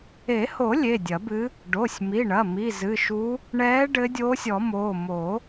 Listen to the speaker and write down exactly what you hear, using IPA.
e˨˩˦ h o˨˩˦ lʲ e˩˧˩ dʲ ɐ˨˩˦ b ɨ˧˥ | ɖ o˩˧˩ sʲ m i˩˧˩ ɳ ɐ˩˧˩ m i˩˧˩ z ɨ˩˧˩ ʃ u˧˥ | ɳ ɛː˧˥ ɖ ɘ˧˥ dʲ oː˧˥ sʲ ɔ˨˩˦ m oː˩˧˩ m o˨˩˦

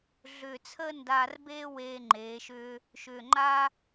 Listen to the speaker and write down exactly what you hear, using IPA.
ɮ ʏː˧˩ t͡sʰ əː˥ n d aː˧ r b eː˥ w eː˧ ŋ͡ǃ eː˩˧ ʃ ʏː˧ | ʃ ʏː˧˩ ŋ͡ǃ a˥

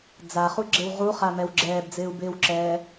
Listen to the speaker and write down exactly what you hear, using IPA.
d͡z a χ u ɡ͡ǁ ɪ w ʁ u χ a m ɛ w ɡ͡ǁ ɛː b d͡z ɪː u̯ b ɪː w ǁ ɛː

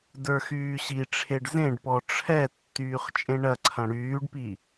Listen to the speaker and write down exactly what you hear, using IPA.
d ə˞ x yː ɕ i ʈ͡ʂʰ e ɖ z ẽ ɖ p ɔ ʈ͡ʂʰ ɛ tː yː χ t͡ʃʼ ẽ ɳ ɐ ǀʰ ɐ̃ ɽ yː ɖ p i

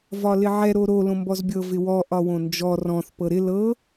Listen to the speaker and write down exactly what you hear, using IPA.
v ɒ l ɪ ʕ ɛ ɾ o ɾ o l õ m b ɔ z bʲ ɤ v ɪ w ɔ ʔ ɒ w õ n d͡ʒ ɔ r ɔ̃ θ p ɤ ɾ ɪ l ɤ

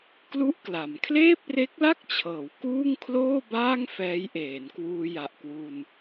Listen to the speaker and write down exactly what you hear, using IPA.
k l u˥˩ ʔ k l a˩˦ m kʰ l eː˥˩ p̚ r e˦˥ k̚ l a˥˩ k̚ t͡ɕʰ ɤː˩˦ w k uː˥˩ ŋ kʰ l oː˥˩ b aː˥˩ ŋ f ɛː˦˥ j ʔ eː˩˦ n k w uː˧ j a˨˩ ʔ k w u˧ n

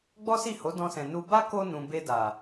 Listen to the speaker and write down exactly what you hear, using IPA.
ɡ͡b ɔ˦ s i˦˨ h o˨˦ d ɔ̃˧ s ɛ̃˨ n u˧ b a˦ k o˧ n ũ˨ b e˧ d a˨

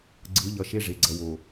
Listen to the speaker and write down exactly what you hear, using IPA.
ɡ͡ǀ ɯ˨˦ ʎ ʌ˨ ʃ e˦ ʐ e˨ ɡ͡ǀ ʌ˨ w o˨

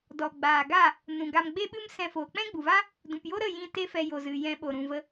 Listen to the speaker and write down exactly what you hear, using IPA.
d ɔ˨ ɡ͡b aː˨ ɡ a˦˨ | n ũ˨ ɡ a˧ m ɡ͡b e˦ ɓ ɨ˦ m s ɛ̃˧ f oː˨ k͡p ɛ̃˦ ɡ͡b u˨ v a˦ | d ũ˨ p j o˦ ɾ ə˦˨ j ĩ˦˨ t e˦ f ɛ˧ j o˨ z ɨ˨ j ɛ̃˧ ɓ o˨ ɾ ũ˨ v ə˧

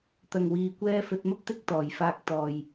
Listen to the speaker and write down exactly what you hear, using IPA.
t̪ ɐ˨ ŋ w iː˨ kʷ ɛː˧ f ɵ˧ t̚ m ɐ˥ p̚ t̪ ɪ˥ k̚ t̪ ɔː˨ j f aː˧ k̚ t̪ ɔː˨ j

